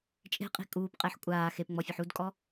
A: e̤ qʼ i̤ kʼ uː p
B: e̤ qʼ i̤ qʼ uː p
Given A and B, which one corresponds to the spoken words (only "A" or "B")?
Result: A